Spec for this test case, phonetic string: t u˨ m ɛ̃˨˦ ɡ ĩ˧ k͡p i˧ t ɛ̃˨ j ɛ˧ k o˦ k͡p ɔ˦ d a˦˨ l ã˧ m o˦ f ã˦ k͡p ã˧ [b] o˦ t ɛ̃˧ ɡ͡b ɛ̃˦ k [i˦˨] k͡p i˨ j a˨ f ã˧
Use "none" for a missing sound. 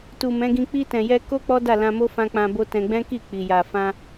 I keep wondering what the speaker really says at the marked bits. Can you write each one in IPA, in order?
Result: b, i˦˨

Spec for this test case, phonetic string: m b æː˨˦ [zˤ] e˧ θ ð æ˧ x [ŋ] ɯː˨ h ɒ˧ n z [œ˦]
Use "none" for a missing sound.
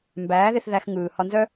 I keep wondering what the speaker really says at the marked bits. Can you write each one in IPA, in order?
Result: ð, ŋ, œ˦

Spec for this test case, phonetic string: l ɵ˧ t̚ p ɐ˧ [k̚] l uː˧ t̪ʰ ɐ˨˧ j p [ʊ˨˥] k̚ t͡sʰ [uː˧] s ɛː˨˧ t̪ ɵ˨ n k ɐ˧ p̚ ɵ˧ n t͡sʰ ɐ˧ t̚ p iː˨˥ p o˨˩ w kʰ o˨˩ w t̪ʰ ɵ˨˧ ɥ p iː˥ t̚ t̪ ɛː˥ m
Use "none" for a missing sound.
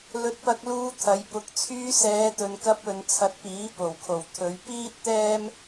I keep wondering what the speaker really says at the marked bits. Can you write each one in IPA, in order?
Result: k̚, ʊ˨˥, yː˧

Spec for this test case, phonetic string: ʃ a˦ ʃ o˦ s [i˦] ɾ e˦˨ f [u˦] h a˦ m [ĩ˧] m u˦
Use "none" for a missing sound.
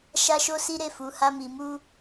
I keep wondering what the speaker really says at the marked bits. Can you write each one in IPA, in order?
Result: i˦, u˨˦, i˧

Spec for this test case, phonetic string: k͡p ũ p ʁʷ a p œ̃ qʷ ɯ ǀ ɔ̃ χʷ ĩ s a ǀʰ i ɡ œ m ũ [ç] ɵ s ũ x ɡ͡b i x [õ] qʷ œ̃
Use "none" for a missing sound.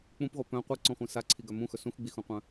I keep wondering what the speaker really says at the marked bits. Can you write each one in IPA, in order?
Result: x, ũ

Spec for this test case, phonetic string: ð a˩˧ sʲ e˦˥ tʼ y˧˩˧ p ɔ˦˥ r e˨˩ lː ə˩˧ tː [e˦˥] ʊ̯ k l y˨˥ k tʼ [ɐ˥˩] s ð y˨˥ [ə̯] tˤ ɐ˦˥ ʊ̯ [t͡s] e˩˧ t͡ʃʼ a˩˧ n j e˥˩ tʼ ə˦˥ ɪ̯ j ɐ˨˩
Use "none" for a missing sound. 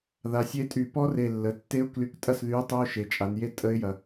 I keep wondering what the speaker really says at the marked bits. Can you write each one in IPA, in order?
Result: e˦˥, ɐ˥˩, ʊ̯, ʃ

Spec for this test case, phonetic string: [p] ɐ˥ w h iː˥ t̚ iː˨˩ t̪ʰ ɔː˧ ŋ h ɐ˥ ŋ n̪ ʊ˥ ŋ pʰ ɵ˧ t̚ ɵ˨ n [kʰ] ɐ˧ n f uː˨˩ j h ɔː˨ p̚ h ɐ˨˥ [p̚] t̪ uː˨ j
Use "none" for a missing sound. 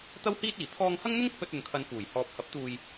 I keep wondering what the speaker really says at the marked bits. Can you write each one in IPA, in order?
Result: t̪, kʰ, p̚

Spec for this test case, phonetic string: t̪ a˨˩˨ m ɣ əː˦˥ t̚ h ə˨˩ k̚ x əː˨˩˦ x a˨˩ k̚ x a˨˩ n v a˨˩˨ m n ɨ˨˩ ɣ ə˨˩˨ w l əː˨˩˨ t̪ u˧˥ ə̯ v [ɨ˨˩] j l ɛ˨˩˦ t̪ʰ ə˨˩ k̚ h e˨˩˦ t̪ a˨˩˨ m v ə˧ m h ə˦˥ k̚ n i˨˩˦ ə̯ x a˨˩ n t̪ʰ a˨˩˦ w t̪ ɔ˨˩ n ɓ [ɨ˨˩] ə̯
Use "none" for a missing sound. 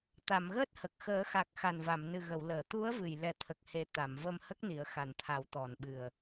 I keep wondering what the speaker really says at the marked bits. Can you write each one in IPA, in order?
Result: ɨ˨˩, ɨ˨˩

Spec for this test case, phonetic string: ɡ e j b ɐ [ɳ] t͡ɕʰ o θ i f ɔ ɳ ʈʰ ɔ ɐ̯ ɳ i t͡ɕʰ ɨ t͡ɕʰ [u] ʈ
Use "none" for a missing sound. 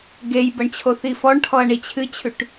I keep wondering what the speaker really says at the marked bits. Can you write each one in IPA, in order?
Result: ɳ, ʉ

